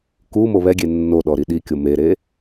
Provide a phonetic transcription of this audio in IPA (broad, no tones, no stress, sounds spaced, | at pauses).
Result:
k u m o β ɛ ɡʲ e nː o ɗ ɔ ɾ i ɗ i kʲ o m e ɾ e